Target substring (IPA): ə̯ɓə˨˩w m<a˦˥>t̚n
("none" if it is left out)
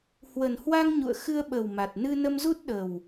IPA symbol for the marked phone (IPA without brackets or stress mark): a˨˩